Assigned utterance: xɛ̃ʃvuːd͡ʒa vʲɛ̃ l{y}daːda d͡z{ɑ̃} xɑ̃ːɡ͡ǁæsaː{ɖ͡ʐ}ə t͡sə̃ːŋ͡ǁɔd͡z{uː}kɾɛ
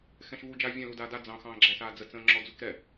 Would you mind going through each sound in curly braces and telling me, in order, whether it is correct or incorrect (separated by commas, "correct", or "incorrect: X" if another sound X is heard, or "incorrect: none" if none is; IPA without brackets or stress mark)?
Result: incorrect: u, correct, incorrect: d͡z, incorrect: u